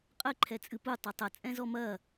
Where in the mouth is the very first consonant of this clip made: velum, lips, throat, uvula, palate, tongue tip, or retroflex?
uvula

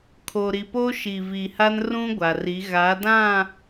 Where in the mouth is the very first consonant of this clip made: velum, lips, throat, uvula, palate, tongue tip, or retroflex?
velum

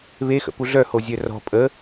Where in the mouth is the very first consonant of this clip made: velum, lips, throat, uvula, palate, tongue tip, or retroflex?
lips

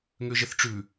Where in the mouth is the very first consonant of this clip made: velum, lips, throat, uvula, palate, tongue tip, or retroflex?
velum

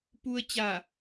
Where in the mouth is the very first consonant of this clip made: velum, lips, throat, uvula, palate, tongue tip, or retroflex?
lips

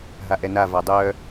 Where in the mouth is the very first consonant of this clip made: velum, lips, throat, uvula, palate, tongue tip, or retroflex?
throat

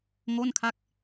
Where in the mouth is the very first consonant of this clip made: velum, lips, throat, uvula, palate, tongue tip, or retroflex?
velum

